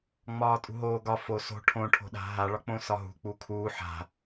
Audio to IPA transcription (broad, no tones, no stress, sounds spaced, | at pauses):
ŋ͡m ɒː tʼ ṳ ɦ oː ɡ ɒ f o s o̤ ʈʰ õ ʈʰ o̤ ɗ a̤ ɦ a ɭ ɒ k͡p õ s ɒ ɦ ṳ k͡p u kʰ uː ħ a̤